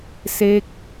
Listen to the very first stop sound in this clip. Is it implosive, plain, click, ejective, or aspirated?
plain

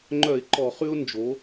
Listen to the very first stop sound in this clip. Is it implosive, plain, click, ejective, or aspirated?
click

